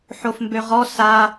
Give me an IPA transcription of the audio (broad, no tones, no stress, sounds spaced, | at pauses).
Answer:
ħ o f m b ø ʁ ɔ s a